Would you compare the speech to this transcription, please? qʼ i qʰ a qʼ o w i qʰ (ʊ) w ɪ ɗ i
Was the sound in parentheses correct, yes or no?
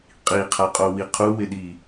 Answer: no